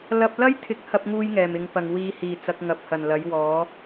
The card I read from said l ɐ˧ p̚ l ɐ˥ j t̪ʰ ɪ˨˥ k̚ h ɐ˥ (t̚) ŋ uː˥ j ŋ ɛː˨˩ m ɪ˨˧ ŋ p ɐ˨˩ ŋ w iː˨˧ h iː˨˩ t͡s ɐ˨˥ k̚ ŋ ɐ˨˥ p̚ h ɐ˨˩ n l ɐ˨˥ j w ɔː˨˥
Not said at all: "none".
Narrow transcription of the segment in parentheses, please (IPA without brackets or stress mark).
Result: p̚